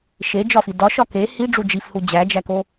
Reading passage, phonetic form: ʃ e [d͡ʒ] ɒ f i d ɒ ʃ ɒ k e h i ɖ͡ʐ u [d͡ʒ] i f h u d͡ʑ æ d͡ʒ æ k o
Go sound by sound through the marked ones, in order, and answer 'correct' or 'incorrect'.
correct, correct

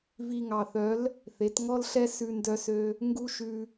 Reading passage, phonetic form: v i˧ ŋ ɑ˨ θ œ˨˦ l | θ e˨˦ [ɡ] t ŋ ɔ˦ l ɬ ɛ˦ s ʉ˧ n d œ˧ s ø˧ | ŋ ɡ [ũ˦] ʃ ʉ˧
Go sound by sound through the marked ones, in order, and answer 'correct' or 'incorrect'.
incorrect: none, incorrect: u˦

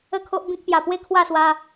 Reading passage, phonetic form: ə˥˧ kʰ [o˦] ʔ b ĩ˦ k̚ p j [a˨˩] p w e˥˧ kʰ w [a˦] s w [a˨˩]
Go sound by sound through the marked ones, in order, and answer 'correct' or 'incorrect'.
correct, correct, incorrect: a˥˧, incorrect: a˧

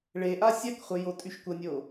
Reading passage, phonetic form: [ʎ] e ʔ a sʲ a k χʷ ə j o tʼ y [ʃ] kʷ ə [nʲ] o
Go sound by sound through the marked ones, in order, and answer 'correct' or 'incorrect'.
incorrect: ɭ, correct, correct

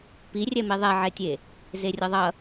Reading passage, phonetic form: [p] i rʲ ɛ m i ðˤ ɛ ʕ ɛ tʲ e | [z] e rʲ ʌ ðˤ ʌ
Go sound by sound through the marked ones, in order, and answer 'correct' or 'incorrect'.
correct, correct

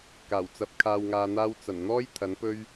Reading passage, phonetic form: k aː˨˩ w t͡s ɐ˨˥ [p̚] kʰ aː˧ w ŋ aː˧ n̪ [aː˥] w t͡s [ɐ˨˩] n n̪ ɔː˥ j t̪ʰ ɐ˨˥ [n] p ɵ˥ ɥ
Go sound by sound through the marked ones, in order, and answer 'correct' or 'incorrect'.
correct, correct, correct, correct

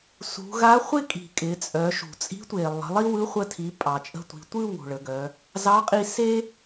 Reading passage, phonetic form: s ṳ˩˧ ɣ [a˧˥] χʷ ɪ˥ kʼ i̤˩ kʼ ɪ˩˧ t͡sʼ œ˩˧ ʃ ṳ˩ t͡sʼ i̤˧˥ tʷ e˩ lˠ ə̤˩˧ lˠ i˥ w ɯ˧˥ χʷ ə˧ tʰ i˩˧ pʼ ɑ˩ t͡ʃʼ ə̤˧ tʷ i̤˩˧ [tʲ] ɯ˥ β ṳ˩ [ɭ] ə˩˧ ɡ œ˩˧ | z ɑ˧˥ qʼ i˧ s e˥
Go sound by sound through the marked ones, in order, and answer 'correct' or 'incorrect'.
correct, incorrect: tʷ, correct

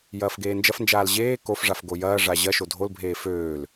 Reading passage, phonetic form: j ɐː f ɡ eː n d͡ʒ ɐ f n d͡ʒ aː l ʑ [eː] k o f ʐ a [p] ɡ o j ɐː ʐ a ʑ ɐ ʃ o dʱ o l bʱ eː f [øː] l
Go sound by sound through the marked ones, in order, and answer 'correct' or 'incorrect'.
correct, incorrect: f, correct

